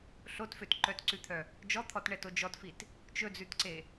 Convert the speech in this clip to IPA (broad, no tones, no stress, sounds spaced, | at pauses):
ɬ o t f ø t ǃ œ t ǀ ʉ t̪ʰ œ | d͡ʒ ɔ t̪ʰ ɔ t ɳ ɛ t o d͡ʒ ɔ t f i t | t͡ʃ ɵ d͡z ʉ t ǀ e